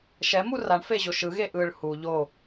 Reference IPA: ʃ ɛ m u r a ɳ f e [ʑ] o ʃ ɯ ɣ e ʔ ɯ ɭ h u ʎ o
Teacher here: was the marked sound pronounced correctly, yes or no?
yes